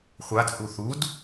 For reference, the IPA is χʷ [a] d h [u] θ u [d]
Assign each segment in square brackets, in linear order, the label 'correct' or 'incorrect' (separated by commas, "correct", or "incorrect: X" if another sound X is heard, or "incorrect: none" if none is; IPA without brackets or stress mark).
correct, correct, correct